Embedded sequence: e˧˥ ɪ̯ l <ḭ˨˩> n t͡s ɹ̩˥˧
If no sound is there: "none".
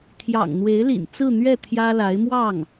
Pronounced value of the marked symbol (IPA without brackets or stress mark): ḭ˨˩